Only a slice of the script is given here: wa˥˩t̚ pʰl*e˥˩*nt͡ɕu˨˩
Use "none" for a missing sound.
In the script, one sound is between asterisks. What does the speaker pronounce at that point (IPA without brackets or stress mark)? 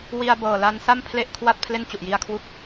e˥˩